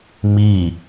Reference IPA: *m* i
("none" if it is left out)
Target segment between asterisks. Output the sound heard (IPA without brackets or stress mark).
m